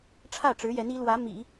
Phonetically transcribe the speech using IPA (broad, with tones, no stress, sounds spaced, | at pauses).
ʈ͡ʂʰ ä˥˩ ʈ͡ʂ ɻ̩˧˥ j ɛ˧˥ n i˧˥ l w ä˧˥ m ḭ˨˩˦